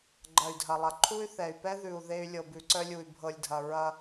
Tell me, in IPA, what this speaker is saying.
ɡ͡ǃ ɐ˨ y̯ dʱ ɐ˨ lˠ ɐ˨ ǃʰ u˦ y̯ θ ɛ˨ y̯ p ɛ˦ ð ʉ˨ u̯ ð e˦ y̯ lʲ ɤ˨ b ʉ˨ ǀ œ˦ lʲ u˨ y̯ bʱ ɤ˨ lʲ dʱ ɐ˨ ɹ ɐ˦

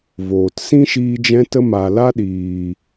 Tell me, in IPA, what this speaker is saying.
v oː˨ t s ĩ˦ ʃ iː˧ d͡ʒ ɛ̃˧ t ə˧ m a˨ l a˦ ɗ iː˨

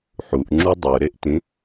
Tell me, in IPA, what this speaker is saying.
ħ u ʔ ŋ͡ǁ u dˤ ɯ ɾ e ʔ t ĩ

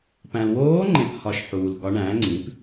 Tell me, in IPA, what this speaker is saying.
p æ̃˨ l w oː˧˥ ŋ͡ǃ ẽ˨ p h ɒ˨ ʃ ħ uː˨ l ɡ ɒ˧˥ ɳ æ̃ː˩˥ ŋ͡ǀ ĩ˩˥ p

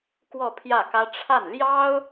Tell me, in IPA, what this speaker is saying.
k w ɔ˥˧ pʰ j ä˥˩ k ä˥ ʈ͡ʂʰ a˥˩ n l j ɑ˥ ʊ̯

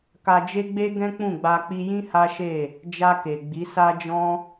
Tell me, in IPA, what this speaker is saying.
k a˧ d͡ʒ e˦ ɡ͡b e˦ ɡ ɛ̃˦ k͡p ũ˦˨ ɡ͡b a˧ k͡p i˧ j ĩ˦ h a˦ ʃ e˦˨ | d͡ʒ a˧ k e˨ ɡ͡b i˨˦ s a˦ d͡ʒ ɔ̃˦

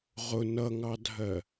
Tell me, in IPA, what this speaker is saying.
ʁ ʊ n ʌ ŋ ɑ dʱ ɜ

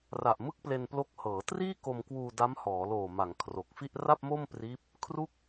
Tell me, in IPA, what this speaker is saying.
r a˨˩ ʔ m ɯ˥˩ k̚ p l e˧ n p l o˦˥ k̚ h ɤː˩˦ t r iː˥˩ k o˧ m k w uː˧ d a˦˥ m h ɔː˩˦ l oː˨˩ m a˩˦ ŋ kʰ r o˨˩ k̚ f i˥˩ ʔ r a˥˩ p̚ m o˥˩ m p r iː˦˥ p̚ | kʰ r u˥˩ k̚

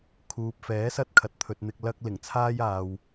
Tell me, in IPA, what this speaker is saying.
kʰ uː˨ p̚ f ɛː˨˥ s ɐ˧ t̚ kʰ ɐ˨ t̚ t̪ʰ ɵ˨ t̚ n̪ ɪ˧ k̚ l ɐ˥ k̚ l ɪ˨˩ ŋ t͡sʰ aː˥ j aː˨ w

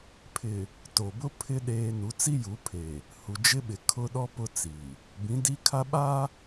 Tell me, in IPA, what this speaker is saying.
pʰ ɪ˨ | t o˨ b ʊ˦ pʰ ɪ˦ ɗ eː˦ n u˨˦ t͡s i˦ j u˨˦ pʰ e˨ | h u˨ d͡ʒ ɪ˦ ɓ ɪ˨ kʰ ʊ˦ ɗ ɔ˦ p ʊ˦ t͡s i˨ | b ĩ˨˦ d i˦ kʰ a˦ ɓ a˦

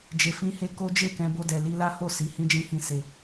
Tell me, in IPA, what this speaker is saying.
d͡ʒ e˧ f ĩ˦ h e˦ k o˦ d͡ʒ e˦˨ k ɛ̃˧ b o˦ d ɛ˧ l i˦ l a˦ h o˦˨ s i˨˦ h ĩ˦ d͡ʒ ĩ˦ h ĩ˦˨ s e˧

